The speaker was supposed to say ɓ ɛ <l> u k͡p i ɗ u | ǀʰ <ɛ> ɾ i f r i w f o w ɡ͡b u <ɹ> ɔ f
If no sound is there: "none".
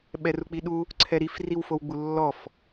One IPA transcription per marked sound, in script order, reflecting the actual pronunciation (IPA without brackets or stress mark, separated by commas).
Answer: r, ɛ, lː